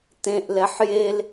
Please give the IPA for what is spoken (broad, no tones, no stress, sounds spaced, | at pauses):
t ẽ ʔ l ɛ ħ j e l